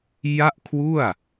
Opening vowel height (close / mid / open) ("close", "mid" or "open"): open